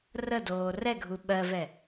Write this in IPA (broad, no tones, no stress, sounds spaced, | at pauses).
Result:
r ə d oː r ɛ ɡʱ u ɓ ɜ v ɛ